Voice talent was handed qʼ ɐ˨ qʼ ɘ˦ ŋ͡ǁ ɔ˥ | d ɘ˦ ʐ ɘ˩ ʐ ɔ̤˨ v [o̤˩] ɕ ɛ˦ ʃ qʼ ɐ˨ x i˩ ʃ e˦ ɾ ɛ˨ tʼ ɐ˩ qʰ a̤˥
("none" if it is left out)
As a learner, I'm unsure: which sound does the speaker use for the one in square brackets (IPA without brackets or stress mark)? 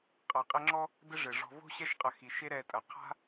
o̤˥